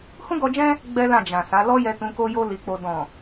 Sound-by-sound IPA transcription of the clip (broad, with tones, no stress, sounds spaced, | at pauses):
h ũ˦ ɡ ɔ˧ d͡ʒ ɛ̃˦ | ɡ͡b ɛ˦ l ã˦˨ d͡ʒ ã˨ s a˨˦ l ɔ˦ j ɛ˧ t ũ˧ k o˦ j o˦ l i˧ k͡p o˧ d ɔ̃˨